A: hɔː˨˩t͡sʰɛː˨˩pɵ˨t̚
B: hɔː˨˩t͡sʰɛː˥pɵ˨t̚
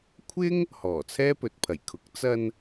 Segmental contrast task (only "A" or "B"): B